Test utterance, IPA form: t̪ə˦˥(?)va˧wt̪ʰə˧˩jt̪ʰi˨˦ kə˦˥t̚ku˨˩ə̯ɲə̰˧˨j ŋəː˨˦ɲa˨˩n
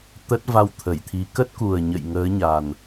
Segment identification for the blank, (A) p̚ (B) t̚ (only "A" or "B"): B